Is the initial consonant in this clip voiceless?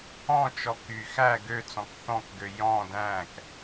yes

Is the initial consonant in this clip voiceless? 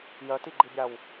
no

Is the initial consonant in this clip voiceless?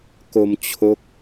yes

